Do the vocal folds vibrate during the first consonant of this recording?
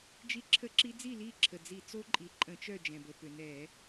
yes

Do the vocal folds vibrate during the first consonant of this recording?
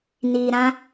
yes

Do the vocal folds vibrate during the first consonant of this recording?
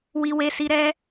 yes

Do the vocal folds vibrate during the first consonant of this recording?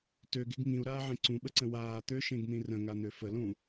no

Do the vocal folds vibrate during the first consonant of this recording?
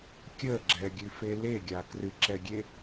no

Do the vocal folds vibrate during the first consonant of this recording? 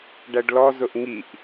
yes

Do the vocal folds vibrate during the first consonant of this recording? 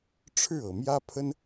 no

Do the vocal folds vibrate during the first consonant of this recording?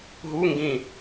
yes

